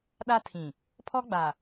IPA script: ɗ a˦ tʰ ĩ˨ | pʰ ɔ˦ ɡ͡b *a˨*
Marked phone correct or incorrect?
correct